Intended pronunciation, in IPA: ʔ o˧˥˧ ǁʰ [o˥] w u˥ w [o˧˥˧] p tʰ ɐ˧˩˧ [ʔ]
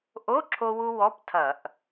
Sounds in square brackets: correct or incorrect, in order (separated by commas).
correct, incorrect, correct